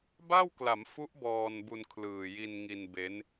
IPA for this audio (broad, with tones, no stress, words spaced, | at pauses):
ba˥˩wkla˩˦mfu˦˥ʔ bɔː˧nbu˧n kʰlɯː˨˩ji˧nŋi˧nbe˦˥n